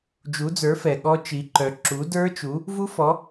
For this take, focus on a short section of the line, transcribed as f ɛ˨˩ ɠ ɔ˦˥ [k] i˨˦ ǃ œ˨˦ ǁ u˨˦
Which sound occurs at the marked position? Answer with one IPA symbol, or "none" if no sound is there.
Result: t͡ʃ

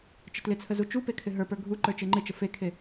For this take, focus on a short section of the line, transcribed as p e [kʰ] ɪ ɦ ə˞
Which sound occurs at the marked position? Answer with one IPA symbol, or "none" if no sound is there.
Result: kʰ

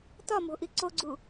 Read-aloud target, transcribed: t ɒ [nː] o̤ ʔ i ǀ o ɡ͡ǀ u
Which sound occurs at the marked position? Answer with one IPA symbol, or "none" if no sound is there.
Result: m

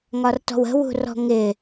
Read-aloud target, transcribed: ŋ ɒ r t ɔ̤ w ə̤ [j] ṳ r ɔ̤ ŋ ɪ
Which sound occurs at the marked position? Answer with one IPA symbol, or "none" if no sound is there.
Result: w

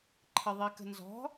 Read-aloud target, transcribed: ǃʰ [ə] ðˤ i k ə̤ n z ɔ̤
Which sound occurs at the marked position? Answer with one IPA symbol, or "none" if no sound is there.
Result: ə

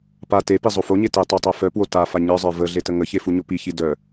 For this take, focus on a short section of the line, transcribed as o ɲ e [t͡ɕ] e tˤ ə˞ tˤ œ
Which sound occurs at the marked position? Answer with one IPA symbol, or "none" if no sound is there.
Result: t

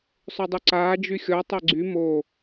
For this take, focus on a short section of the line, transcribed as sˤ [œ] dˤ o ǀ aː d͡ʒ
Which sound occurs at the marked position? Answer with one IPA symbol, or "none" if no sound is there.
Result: ø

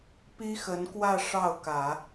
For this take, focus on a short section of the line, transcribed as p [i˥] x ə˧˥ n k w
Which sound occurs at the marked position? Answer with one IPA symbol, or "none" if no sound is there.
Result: i˥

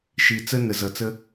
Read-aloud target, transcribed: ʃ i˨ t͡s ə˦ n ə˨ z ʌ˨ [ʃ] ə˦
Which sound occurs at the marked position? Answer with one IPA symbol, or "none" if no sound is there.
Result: t͡s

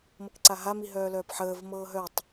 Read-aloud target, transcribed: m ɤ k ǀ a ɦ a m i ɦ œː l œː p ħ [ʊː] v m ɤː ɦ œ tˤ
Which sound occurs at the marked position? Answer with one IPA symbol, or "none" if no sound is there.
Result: əː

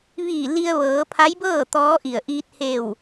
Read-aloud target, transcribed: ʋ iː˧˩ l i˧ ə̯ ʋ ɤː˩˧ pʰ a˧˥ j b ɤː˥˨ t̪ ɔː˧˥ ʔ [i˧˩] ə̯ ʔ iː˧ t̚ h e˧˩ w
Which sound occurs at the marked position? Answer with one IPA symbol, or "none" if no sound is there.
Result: i˧˩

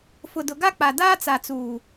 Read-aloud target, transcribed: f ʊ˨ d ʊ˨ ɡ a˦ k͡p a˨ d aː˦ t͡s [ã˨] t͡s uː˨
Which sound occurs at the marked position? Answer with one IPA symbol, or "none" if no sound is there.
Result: a˨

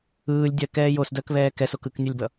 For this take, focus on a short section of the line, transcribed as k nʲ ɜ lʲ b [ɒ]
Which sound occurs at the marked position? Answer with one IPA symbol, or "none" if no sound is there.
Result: ʌ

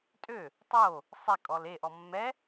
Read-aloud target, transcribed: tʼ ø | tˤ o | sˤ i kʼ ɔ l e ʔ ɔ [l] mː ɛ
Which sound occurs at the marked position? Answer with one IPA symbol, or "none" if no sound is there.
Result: none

